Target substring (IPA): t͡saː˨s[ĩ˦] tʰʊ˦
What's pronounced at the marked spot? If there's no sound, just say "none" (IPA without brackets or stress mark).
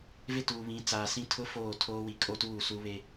ĩ˦